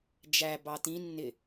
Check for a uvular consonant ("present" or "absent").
absent